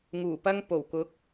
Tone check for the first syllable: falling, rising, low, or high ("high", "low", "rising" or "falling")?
low